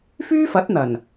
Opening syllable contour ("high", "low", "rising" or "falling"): high